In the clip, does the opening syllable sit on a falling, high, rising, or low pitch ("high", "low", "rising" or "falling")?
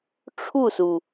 falling